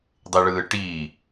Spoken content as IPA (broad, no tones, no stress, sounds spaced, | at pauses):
dˤ e ɭ ɯː ʈ iː